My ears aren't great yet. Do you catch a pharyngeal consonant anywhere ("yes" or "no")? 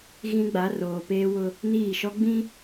no